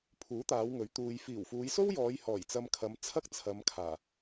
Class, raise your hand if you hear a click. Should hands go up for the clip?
no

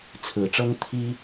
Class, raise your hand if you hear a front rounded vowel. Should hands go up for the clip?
no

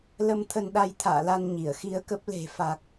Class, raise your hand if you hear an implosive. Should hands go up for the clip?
yes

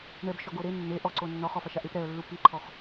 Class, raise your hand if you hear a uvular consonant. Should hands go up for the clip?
yes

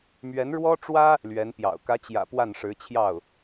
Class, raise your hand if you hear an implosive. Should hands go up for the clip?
no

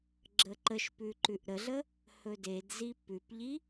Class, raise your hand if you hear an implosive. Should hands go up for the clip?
no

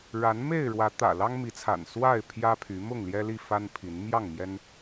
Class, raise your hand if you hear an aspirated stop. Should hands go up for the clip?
yes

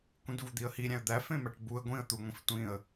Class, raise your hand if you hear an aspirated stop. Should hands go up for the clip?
no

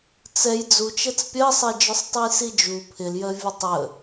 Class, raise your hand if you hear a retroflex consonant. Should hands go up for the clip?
no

